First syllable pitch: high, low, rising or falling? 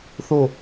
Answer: falling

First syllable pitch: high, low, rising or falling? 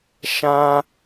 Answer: high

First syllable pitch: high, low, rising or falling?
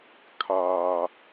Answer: high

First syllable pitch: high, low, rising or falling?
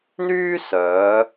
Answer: high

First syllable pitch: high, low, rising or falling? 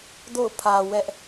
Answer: falling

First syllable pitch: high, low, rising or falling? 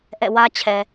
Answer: falling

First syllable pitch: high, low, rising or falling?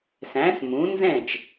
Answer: rising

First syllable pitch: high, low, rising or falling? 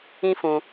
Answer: high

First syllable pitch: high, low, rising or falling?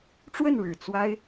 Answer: falling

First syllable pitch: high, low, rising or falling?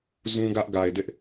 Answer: high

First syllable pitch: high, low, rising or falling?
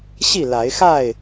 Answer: falling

